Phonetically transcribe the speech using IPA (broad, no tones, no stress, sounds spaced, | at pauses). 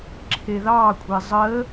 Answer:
ǁʰ e ð ɑ kʷʼ e zˤ ə